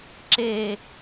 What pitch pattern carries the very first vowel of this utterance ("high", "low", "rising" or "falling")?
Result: falling